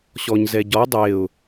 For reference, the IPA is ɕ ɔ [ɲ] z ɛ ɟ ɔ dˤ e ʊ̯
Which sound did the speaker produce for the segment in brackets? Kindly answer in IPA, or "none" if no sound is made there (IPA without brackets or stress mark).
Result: ɲ